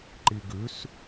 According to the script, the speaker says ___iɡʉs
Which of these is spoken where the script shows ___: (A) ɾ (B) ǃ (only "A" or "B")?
B